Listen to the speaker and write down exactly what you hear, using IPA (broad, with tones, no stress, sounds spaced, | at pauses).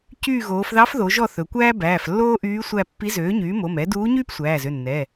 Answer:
c yː˦˨ ɣ oː˩˧ f ð ɑ˧˥ f ð o˩˧ ʒ ɔ˦˨ θ ɵ˩˧ kʷ æː˥ b æː˩˧˩ f lː oː˥ ʔ yː˧˥ sʷ æ˦˨ pː i˧˥ z øː˩˥ ɲ yː˩˥ m o˩˧˩ m ɛ˩˥ d uː˧˥ ɲ yː˥ p sʷ æː˩˧˩ z ø˩˧˩ nː ɛ˩˧˩